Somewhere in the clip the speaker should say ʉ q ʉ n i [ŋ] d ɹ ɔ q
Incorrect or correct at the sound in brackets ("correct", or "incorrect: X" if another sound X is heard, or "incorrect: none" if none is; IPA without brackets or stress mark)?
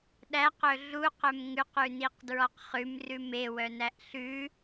incorrect: q